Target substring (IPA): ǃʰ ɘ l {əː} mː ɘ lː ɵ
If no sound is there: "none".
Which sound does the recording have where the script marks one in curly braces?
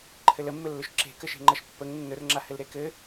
ə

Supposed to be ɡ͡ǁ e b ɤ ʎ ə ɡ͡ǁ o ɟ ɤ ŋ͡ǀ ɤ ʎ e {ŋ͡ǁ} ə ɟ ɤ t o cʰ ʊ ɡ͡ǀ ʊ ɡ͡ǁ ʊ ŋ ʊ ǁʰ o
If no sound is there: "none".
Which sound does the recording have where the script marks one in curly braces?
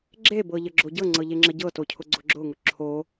ŋ͡ǁ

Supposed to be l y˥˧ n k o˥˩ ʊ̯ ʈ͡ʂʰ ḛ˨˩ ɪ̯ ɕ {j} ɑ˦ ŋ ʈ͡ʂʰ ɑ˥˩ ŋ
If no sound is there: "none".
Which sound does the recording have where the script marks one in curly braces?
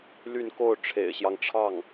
j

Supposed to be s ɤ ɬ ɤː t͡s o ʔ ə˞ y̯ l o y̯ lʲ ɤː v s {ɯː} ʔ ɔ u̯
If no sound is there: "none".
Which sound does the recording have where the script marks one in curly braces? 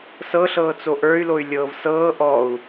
ɤː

